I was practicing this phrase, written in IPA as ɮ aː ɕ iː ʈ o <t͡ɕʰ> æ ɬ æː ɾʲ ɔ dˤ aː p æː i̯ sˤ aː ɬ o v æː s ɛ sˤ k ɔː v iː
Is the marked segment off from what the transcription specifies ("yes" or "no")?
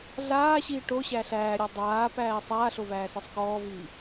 yes